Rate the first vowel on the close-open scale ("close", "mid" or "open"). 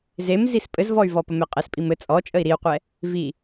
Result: mid